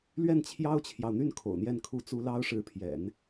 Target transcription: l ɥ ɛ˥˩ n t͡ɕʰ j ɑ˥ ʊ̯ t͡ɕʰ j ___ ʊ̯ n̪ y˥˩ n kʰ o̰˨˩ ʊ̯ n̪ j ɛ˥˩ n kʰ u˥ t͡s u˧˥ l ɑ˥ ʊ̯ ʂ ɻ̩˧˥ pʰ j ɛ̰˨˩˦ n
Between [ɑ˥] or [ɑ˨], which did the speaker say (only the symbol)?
ɑ˨